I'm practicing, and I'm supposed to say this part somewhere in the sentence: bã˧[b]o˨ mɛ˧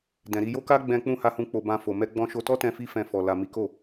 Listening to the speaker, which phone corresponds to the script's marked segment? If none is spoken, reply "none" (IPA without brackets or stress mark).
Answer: f